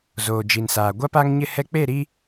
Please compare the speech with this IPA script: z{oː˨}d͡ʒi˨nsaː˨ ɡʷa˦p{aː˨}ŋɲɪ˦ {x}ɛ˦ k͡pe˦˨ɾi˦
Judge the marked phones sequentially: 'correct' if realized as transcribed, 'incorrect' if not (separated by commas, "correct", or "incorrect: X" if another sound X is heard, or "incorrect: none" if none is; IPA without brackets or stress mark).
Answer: correct, incorrect: aː˦, incorrect: h